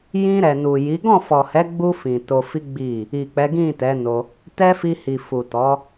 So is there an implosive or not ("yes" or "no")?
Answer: no